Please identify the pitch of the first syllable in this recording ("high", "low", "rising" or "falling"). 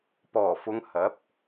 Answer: low